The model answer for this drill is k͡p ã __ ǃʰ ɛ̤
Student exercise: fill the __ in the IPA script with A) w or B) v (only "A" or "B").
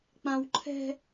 A